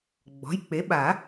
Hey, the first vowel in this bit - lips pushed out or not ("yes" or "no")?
yes